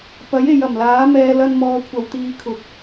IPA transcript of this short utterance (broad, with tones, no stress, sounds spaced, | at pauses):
p ɐ˨˥ j e˨ j ɐ˨˩ m l aː˨˥ m ɛː˧ l ɐ˧ n m ɔː˨ kʷʰ ɐ˨ w t̪ iː˧ kʰ ʊ˨ k̚